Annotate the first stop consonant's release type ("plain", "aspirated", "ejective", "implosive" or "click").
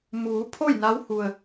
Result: aspirated